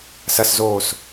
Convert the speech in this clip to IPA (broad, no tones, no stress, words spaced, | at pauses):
sɐszoːs